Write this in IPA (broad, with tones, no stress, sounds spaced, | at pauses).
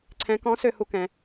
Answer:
ǀʰ ɛ̃˧˥ k ɔ̃˧˥ s ø˧ h u˥ k ɛ̃˩˧